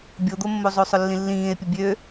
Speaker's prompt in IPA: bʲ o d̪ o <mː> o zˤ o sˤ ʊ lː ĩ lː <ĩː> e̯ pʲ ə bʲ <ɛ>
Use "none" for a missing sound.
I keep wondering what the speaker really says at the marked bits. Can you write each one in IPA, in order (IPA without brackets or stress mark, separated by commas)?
mː, ĩː, ø